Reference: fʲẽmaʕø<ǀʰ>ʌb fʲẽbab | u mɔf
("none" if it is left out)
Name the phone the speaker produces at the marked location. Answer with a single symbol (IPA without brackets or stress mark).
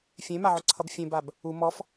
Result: ǀʰ